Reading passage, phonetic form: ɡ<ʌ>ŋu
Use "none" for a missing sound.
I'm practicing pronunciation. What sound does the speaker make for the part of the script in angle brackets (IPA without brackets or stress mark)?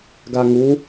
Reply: a